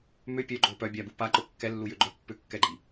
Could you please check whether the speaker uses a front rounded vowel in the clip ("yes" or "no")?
yes